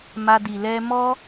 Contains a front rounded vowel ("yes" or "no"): no